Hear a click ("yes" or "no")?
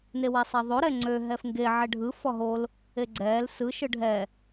yes